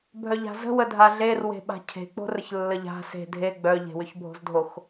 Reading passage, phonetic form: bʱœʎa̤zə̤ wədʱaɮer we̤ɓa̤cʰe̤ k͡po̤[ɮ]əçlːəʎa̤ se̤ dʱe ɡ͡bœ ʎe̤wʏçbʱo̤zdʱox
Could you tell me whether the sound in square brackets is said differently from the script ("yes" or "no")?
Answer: yes